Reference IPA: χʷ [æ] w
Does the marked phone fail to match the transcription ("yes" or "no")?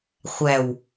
no